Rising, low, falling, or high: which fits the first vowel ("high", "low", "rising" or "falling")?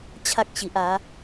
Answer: high